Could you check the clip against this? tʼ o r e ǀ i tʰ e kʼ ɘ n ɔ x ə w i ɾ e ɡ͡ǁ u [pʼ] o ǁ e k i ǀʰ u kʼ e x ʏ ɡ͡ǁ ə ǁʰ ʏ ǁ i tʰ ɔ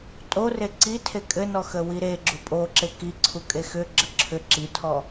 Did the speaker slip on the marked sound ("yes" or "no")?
no